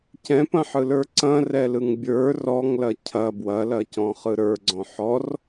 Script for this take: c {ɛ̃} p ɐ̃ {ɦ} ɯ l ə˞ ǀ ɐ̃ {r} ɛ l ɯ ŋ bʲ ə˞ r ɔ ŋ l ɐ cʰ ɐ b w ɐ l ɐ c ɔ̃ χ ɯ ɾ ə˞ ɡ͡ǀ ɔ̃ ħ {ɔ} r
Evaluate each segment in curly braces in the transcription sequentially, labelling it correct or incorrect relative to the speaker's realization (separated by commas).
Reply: correct, incorrect, correct, correct